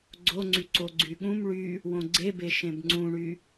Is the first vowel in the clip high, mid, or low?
mid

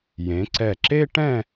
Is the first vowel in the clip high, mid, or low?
mid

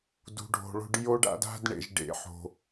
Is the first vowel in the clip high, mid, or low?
high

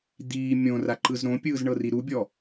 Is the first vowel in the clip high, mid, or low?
high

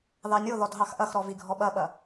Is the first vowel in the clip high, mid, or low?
low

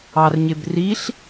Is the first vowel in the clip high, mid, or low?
low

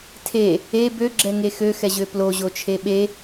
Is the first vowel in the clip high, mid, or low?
mid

